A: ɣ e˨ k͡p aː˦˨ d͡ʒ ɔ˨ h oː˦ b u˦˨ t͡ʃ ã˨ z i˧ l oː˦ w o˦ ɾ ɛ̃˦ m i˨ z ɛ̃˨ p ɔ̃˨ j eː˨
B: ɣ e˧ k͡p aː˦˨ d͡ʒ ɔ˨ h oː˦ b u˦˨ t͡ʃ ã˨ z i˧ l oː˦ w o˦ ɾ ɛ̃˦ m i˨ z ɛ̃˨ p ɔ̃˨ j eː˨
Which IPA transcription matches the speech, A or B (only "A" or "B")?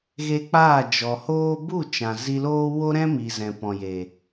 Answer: B